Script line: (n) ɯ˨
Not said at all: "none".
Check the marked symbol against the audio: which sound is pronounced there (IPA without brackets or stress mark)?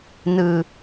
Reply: n